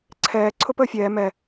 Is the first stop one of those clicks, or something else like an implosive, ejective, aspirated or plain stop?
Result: click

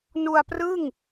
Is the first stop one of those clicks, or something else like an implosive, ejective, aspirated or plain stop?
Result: plain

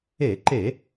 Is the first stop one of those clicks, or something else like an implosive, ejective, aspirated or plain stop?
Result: click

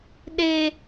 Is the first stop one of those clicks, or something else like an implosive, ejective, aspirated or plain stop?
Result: implosive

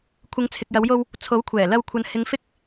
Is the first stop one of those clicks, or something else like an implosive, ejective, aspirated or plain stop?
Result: aspirated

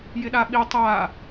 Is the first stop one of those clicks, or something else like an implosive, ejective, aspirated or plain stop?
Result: implosive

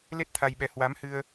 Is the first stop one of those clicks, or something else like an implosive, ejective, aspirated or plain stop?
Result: plain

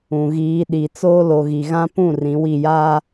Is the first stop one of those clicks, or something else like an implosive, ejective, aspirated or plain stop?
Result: implosive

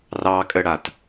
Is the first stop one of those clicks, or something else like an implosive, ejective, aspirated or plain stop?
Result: ejective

